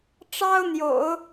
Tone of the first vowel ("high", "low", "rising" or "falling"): high